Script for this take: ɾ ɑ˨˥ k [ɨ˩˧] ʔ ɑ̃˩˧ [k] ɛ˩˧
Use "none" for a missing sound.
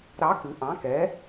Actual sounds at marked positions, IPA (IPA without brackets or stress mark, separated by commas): ɨ˩˧, k